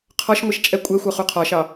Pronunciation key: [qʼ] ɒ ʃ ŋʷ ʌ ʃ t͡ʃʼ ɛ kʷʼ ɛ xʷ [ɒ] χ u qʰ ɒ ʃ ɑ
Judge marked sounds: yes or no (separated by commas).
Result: no, no